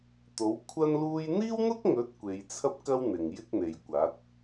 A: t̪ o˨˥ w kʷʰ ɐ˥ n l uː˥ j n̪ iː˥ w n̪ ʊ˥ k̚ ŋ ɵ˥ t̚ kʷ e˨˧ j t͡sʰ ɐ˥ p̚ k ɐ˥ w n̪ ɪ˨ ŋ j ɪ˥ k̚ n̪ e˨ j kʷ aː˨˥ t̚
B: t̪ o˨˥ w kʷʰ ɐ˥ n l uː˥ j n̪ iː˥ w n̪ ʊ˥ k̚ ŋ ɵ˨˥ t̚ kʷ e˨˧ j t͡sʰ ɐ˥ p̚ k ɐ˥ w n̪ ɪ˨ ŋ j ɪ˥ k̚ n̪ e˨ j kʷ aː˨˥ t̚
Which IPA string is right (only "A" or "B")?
B